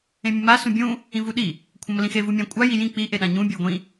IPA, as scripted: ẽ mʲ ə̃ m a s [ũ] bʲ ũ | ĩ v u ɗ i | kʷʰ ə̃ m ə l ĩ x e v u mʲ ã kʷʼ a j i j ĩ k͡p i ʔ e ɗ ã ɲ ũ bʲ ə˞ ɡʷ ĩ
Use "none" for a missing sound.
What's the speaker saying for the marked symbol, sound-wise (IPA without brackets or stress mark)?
ũ